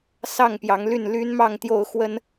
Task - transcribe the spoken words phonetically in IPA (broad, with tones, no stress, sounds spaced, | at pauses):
s ɑ˥˨ ŋ p j ɑ˨˦ ŋ l y˥˨ n l y˦ n m ɑ˥˨ ŋ t̪ j o˥˨ ʊ̯ x w ə˦ n